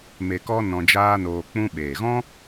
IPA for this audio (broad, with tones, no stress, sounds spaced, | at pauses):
m e˧ k ɔ˦ n ɔ̃˧ d͡ʒ aː˦ n oː˧ k͡p ũ˦ ɓ eː˨ ɣ ɔ̃˦